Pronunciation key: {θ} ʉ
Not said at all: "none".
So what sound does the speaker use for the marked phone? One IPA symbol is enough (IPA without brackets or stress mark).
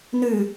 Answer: n